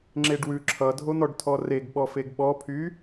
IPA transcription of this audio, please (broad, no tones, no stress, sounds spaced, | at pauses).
ŋ͡ǁ e ɖ w ʉ ǁʰ ʌ dʱ o n̪ ɔ ɖ tʰ ɔ r e ɡ ɓ ɔ f e ɡ ɓ ɔ pʰ y